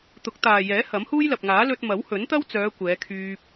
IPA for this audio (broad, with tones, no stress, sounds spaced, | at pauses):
t̪ ʊ˨˥ k̚ t̪ aː˨ j ɛː˨˥ h ɐ˨˥ m h uː˥ j l ɐ˨ p̚ ŋ aː˨˥ l ɵ˧ t̚ m ɐ˨˥ w h ɵ˨˥ n t̪ ɐ˥ w t͡s œː˨˧ kʷ ɛː˨˧ kʰ yː˧ p̚